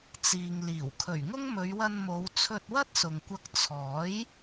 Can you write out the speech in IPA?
t͡s iː˨ ŋ l iː˨˩ w kʰ ɵ˨˩ ɥ ŋ ʊ˥ ŋ m ɵ˨˧ ɥ w ɐ˧ n m o˨˧ w t͡sʰ ɵ˧ t̚ w ɐ˥ t̚ s ʊ˨ ŋ kʷ ɐ˧ k̚ t͡sʰ ɔː˨˥ j

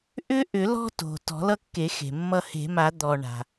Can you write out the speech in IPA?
ʔ ʏ˦ ʔ ʏ˨˩˦ l ɔ̤˦ t o̤˩ t ɔ̤˨˩˦ l ʌ˦ kː e˨˩˦ x e̤˩ mː ʌ˦ h e̤˨˩˦ m a˨˩˦ d̪ ɔ˩ ɳ a̤˩

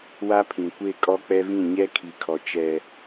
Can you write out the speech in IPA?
w a˦ pʰ ĩ˨ kʷ e˦˨ kʼ ɔ˦ k͡p ɛ˦ v ĩ˦˨ ɲ ɛ˦ kʰ i˨ kʰ ɔ˨ t͡ʃ ɛ˦

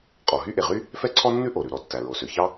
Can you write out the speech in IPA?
qʼ ɔ˩ ɦ y˥ ʔ e˩ ʁ y˥ | f ɛ˥ ǀʰ ɔ˥ nː ʉ˥ ʔ o˩ ɾ ʉ˩ ɾ ɔ˩ tː æ˩ ɹ o˩ s ø˩ ç ɑ˥

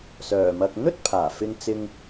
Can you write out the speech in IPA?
s œː˨˩ m ɐ˧ k̚ n̪ ɵ˥ t̚ pʰ aː˨˩ f ɪ˧ ŋ t͡s ɪ˧ ŋ

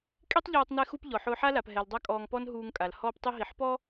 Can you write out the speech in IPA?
kʼ i˦ tˤ ʎ ɔː˧ tˤ n ɛ˧ x u˧ p ʎ ɔ˨ ħ ʊː˧ ħ a˦ l a˨ p ɦ ɛ˨ l dˤ a˦ kʼ ɔː˧ ŋ p ɔ˦ n ɦ uː˧ ŋ kʼ a˨ l h ɔː˧ p tˤ i˧ ɦ i˨ ħ p ɔ˦

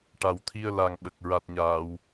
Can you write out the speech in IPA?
ʈ a˨˩ w t̪ʰ i˧ ə̯ l a˨˩ ŋ ɓ ə˨˩ k̚ ɹ a˨˩ t̚ ɲ aː˨˩˨ w

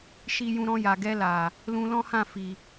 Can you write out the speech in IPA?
ʃ i˧ j ũ˧ ɾ ɔ̃˧ j a˨ ɡ ɛ˧ l a˨ | l ũ˧ l ɔ̃˦ h ã˦˨ f i˨

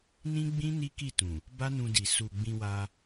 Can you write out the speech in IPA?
n ĩ˦ ɡ͡b ĩ˦ n i˦ k i˦˨ t ũ˨ | b a˦ n ũ˧ d i˨ s u˨ ɡ͡b ĩ˧ w a˧

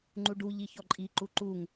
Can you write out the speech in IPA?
ŋ͡ǃ u ɖ u ʎ i ç ɔ ǃʼ i ǃ u ǃ u ŋ

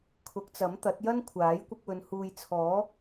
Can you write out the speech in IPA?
kʰ ʊ˨˥ k̚ t͡s ɐ˨˥ m t̪ ɐ˨˥ t̚ j ɐ˥ n kʷʰ aː˨˥ j kʷ ɐ˧ k̚ w ɵ˨˧ n h uː˨ j t͡sʰ ɔː˨˥

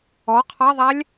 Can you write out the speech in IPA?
ɔ qʰ ɑ ðˤ æ lʲ

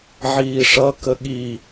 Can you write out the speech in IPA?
ʕ iː ʂ ʌ k ə ɠ i

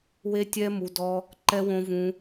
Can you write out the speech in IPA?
w e˦ tʲ ɛ˦ m u˧ d ɔ˦ | ǃ ɛ˦ w õ˦ v ũ˦

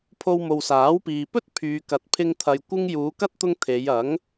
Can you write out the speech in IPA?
pʰ o˧ w m o˨ w s aː˨˥ w p iː˨ p ɵ˥ t̚ pʰ yː˨ k ɐ˨˥ t̚ pʰ ɪ˧ ŋ t̪ʰ ɐ˨ j kʷ ɪ˥ ŋ j uː˨˧ k ɐ˥ t̚ t̪ ʊ˧ ŋ t̪ʰ e˨˧ j ɐ˨˥ ŋ

